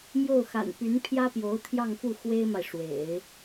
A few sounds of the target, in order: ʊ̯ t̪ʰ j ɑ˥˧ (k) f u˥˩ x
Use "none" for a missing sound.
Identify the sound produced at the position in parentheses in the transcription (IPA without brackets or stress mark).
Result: ŋ